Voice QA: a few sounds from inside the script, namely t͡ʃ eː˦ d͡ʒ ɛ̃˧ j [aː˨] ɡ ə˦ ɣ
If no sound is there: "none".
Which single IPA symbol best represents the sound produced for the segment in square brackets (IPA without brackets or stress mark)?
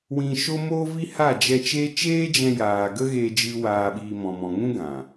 aː˨